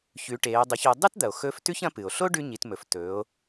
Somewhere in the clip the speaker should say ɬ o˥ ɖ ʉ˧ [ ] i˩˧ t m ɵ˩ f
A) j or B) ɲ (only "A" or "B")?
B